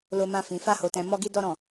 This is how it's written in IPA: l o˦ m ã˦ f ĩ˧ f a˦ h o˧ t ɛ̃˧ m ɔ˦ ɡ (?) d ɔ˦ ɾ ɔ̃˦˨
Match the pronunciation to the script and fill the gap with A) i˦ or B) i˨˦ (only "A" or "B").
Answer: A